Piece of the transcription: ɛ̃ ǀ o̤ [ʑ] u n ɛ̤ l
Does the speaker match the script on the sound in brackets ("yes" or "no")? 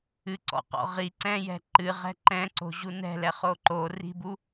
yes